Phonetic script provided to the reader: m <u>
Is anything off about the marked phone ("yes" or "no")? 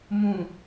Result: yes